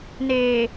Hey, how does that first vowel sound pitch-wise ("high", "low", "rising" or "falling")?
low